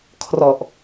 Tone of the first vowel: low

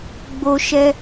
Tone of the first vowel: high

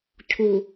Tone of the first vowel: low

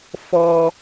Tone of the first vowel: low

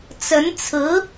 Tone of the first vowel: rising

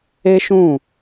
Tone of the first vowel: high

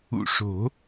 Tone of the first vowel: low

